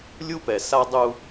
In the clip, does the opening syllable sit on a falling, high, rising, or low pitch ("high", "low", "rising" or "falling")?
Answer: high